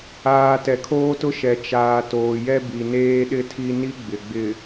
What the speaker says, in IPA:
aː˨ t ɛ˨ kʰ oː˦ t ʊ˦ ʃ ɛ˨ t͡ʃ aː˨ t oː˨ j ɛ˦ b i˨ n eː˦ ɗ ɪ˦ tʰ i˦ n i˦ ɡ͡b ɪ˨ ɡ͡b ɪ˨

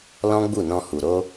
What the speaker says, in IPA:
l ɔ̃˦ ɡ͡b u˦˨ n ɔ̃˧ h u˨ ɾ o˧

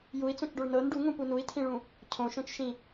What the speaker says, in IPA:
j u i̯ t͡s õ t͡ʃ ɖ o ɭ n ɤ n ɖ u ŋ ũ p u n u i̯ tʰ ĩ ɭ ũ | cʰ õ ʃ õ t͡ʃ ʃ ĩ

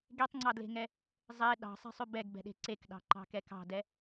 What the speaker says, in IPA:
ɡ e tˤ ŋ͡ǀ ɑ d l e̤ ŋ ɛ | zˤ e ɗ ɑ̤ sˤ ɛ̤ sˤ ʉ b ɛ ɡ b ɛ̤ ɗ e̤ ǀ e k ɗ ɑ̤ ǃ ɑ̤ k ɛ k ɑ̤ d ɛ

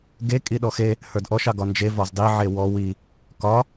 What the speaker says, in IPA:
ɡ e kʼ i ɗ ɔ x e | h ə˞ d ʔ ɔ ʃ ɑ ɡ ɒ n d͡ʒ e v ɒ z dˤ i ʕ e w ɔ w i | k ɒ

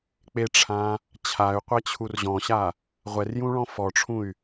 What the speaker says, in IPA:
k͡p e ʈ͡ʂʰ ã | t͡ɕʰ a y̯ qʷ ɛ t͡ɕʰ u r ʑ ɔ̃ ɕ a | ʁʷ ɛ r j ũ ɭ ɔ̃ f ɔ ʈ͡ʂʰ ũ y̯

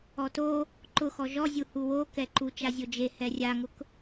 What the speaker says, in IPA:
ɔ t o | ǃ ʊ x ɔ ʒ ɔ zʲ u h u w o k ɛ ǃ u t͡ʃ a zʲ o d͡ʒ e h ɛ rʲ a ŋ ʊ k

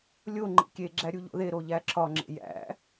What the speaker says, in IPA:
lʲ o ŋ͡ǃ ḭ kʲ e ɡ͡ǁ æ ɾʲ u ʎ o̰ ð e ɾ o ʎ æ ǁʰ ɒ ŋ͡ǁ ḛ j æ̰

